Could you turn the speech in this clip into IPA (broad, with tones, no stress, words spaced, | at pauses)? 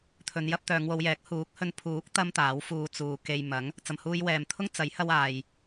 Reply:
t̪ʰɵ˨˧njɐ˧p̚ t̪œː˨˧ŋwo˨˧wjɛː˨˥k̚ huː˨˥k̚hɵ˧n pʰuː˨˥k̚ t̪ɐ˥mt̪aː˨˥wfuː˧ t͡suː˨ ke˧j mɐ˨˥ŋ | t͡sɐ˨mhuː˧jwɛː˨mt̪ʰʊ˥ŋ t͡sɐ˨˥jhɐ˧w aː˨j